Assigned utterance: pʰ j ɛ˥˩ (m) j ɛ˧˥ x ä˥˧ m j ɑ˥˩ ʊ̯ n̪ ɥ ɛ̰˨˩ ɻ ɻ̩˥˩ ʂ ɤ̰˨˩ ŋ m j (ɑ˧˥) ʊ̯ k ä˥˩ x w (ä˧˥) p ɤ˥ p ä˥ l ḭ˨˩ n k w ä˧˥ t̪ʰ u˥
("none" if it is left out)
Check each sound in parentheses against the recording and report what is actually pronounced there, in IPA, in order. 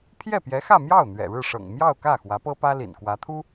p, ɑ˥˧, ä˧˥

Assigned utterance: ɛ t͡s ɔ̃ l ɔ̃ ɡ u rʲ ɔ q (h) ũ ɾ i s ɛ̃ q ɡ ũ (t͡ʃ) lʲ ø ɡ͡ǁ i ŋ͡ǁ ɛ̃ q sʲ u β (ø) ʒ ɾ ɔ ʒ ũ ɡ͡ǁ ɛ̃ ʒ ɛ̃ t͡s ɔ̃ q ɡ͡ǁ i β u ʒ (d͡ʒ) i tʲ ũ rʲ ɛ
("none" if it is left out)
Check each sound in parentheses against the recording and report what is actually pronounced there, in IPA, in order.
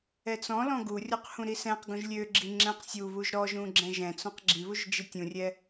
h, ʒ, u, d͡ʒ

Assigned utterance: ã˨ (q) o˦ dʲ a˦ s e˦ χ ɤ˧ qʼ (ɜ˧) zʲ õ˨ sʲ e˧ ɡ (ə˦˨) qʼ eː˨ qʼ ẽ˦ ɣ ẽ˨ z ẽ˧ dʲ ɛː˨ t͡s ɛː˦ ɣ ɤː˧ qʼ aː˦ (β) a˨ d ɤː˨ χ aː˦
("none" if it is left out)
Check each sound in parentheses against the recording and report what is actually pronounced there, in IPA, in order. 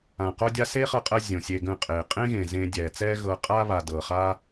q, ɜ˧, ə̃˦˨, β

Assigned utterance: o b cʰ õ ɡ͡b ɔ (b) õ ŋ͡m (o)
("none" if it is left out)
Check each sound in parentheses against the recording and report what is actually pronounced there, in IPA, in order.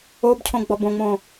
b, õ

